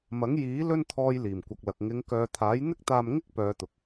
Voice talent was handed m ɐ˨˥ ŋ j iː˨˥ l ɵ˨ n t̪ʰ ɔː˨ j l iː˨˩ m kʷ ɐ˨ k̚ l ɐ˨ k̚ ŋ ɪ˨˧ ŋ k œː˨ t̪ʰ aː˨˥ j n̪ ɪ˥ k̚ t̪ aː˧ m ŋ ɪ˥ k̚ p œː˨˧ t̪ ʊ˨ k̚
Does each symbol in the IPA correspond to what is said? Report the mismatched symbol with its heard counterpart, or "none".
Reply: ɵ˨ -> ɵ˧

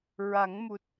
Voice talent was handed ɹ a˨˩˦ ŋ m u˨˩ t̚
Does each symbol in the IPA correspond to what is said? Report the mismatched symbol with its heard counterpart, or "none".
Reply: none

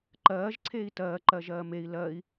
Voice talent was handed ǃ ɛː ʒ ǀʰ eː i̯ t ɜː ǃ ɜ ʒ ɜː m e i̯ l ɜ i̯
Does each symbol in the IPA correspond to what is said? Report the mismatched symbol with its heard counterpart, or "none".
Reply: ɛː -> ɜː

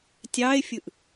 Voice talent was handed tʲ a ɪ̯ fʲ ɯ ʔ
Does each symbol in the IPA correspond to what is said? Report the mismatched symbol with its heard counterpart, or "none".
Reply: a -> ɑ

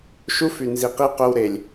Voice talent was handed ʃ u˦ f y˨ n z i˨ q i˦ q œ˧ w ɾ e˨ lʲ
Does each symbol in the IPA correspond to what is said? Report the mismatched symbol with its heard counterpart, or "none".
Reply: none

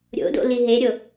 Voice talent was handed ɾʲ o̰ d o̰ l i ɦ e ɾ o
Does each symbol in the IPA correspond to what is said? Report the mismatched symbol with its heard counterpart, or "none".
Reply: ɾ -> ɾʲ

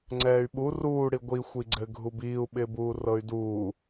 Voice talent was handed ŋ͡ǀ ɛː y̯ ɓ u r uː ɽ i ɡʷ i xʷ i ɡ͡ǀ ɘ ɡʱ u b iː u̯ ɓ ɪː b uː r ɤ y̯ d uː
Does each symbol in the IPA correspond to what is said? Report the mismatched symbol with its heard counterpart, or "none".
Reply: none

